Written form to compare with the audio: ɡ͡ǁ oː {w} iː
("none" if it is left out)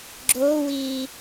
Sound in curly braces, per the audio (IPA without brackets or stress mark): w